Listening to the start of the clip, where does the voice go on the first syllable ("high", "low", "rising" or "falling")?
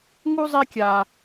high